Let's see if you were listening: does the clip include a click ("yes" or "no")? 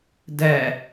no